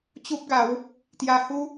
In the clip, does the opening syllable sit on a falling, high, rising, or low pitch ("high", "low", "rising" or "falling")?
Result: high